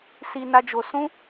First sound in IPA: s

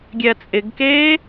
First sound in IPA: ɡʲ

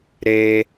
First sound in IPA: ɾ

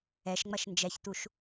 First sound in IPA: ɛ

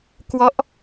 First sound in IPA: k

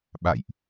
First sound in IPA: ɓ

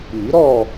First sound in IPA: i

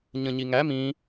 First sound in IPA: ɲ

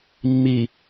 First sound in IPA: mː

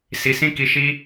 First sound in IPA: s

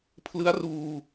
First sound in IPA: pʰ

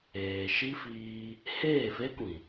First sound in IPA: eː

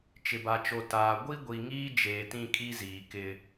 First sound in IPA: t͡ʃ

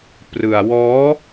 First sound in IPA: p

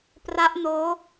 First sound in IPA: p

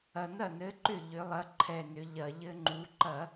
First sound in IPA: ɐ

